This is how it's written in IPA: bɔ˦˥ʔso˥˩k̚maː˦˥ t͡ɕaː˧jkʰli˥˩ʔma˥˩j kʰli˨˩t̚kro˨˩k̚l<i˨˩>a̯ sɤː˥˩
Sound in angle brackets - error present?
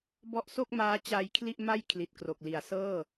yes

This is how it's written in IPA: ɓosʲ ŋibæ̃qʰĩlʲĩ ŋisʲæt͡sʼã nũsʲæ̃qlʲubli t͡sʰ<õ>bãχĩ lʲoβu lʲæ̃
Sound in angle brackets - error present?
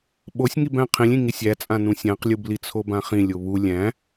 yes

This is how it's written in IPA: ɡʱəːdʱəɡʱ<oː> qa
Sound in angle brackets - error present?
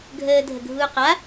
yes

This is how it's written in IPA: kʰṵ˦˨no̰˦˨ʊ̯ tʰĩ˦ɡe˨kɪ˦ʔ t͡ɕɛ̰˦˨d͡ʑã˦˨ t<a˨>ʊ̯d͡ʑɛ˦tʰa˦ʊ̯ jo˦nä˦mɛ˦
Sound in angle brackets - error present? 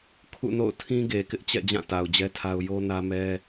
no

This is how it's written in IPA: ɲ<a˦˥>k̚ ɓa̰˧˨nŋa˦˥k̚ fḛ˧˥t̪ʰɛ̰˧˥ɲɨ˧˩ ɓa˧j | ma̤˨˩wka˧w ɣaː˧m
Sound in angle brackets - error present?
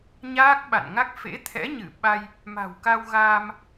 yes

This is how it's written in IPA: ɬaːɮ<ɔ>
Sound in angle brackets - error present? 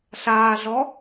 no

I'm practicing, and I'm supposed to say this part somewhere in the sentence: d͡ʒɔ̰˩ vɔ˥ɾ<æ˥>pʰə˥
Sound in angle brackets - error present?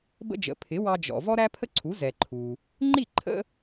no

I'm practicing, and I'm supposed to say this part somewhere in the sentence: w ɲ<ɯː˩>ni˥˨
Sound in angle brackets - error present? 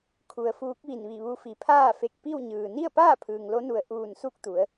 no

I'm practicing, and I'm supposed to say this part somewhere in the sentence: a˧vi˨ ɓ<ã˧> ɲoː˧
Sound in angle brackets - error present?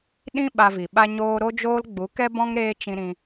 yes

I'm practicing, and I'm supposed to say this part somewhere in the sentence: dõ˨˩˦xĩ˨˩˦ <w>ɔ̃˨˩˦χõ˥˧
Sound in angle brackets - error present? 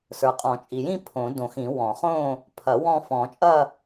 no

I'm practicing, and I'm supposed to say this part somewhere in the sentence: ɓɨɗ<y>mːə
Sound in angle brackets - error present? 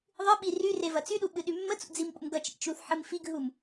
no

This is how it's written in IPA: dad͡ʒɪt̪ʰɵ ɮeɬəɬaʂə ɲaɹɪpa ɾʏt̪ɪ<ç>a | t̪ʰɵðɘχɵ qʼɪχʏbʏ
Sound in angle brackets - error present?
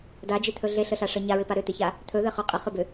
no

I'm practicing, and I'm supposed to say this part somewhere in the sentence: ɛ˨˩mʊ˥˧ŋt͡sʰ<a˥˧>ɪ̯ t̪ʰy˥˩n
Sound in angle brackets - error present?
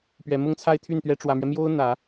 no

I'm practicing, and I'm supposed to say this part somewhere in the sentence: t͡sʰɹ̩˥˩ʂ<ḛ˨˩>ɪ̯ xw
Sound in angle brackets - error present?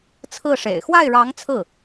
no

